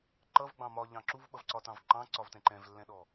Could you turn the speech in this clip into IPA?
ǃ ʌ v ɡ͡b ɑ̃ m ɒ ʎ ɑ̃ ǁ u v ɓ ʌ v ǀ ɒ t ɑ̃ v ǃ ɑ̃ ǀ ɒ v t ɛ̃ ǃ ɛ̃ v lː ɛ̃ ɗ ɔ

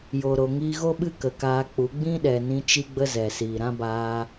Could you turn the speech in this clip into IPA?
j o˨ ɾ o˨ ŋ iː˧ ɣ o˦ ɓ ɨ˦ k ə˨ k aː˧ k͡p u˨˦ ɡ͡b ĩ˦ ɗ ɛ˨ n ĩ˧ t͡ʃ i˦ ɡ͡b ə˦ z ɛ˨ s iː˨ ɾ ã˦ b aː˧

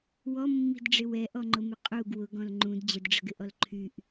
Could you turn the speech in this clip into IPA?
w ɔ mː i̤ d ɖ͡ʐ ɪ w ɛ ʔ ɔ ŋ͡ǃ ʊ m ɪ qʼ u ɡ w ʊ ɡ ɔ̃ l ŋ͡ǃ ũ d d͡ʑ ə d ɖ͡ʐ ə̤ ɡ ɪ ʔ ɔ l ǃʰ y ʔ

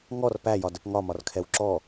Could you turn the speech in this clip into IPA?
ŋ ɔ r p æ j ɒ d ə p ŋ ɒ m ɒ r kʰ ɛ w ǁ ɔ

